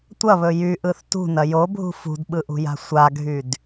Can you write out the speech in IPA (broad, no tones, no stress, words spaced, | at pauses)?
tʷɐβɵ jyʔɯθ tṳnɐ jobʱṳ fṳdɓɯʔṳja̤ sʷaɡʱyd